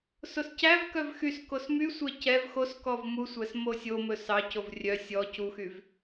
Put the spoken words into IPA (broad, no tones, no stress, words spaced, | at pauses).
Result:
soscævkœv xyskos mysʷɛ cɛv xoskɔv musʷæs mosʲomɵ sɑcov rʲœ sʲɔ cuxyv